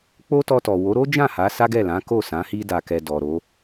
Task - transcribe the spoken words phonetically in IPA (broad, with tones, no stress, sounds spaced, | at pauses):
k͡p o˦ t ɔ˧ t ɔ˨ w o˨˦ ɾ o˦ d͡ʒ ã˦˨ h a˨˦ s a˦ ɡ ɛ˦˨ l ã˨˦ k o˦˨ s ã˨˦ h i˧ d a˨ k ɛ˨ d ɔ˨ ɾ o˨˦